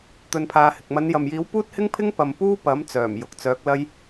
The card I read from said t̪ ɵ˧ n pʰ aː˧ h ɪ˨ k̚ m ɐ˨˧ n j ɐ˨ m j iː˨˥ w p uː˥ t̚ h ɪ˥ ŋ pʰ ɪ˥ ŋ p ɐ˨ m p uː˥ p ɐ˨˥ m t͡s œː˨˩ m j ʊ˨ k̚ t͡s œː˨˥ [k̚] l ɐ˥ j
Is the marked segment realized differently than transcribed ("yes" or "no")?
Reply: no